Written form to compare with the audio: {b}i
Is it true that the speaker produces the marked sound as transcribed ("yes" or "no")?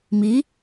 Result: no